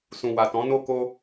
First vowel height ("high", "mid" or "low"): high